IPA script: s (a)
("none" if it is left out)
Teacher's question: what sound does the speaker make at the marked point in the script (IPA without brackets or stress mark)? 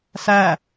æ